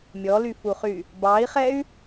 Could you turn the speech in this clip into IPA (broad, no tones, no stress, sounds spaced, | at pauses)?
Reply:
mʲ ɔ l y f u χ y | b ɑ i̯ χ ɛ y̯